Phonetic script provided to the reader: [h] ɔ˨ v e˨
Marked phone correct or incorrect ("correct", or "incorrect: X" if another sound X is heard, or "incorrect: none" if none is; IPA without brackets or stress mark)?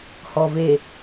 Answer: correct